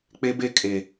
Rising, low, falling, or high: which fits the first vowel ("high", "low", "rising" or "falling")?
high